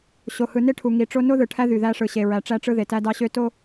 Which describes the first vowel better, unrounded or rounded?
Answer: rounded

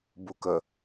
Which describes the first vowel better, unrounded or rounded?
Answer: rounded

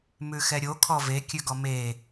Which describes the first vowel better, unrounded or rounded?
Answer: rounded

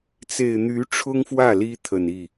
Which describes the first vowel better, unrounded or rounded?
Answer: unrounded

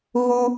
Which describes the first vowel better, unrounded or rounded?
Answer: rounded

